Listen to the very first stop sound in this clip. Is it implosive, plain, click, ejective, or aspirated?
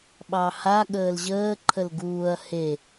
implosive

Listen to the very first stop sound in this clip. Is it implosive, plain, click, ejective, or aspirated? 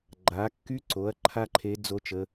click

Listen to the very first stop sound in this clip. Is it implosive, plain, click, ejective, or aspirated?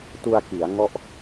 plain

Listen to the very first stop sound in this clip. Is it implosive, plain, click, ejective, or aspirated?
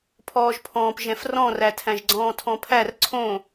aspirated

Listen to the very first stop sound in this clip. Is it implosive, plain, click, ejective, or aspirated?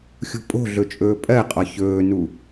ejective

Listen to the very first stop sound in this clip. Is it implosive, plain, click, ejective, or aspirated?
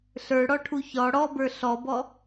aspirated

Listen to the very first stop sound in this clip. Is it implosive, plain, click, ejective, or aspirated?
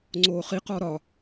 click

